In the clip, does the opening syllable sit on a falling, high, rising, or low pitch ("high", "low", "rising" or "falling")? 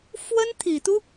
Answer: high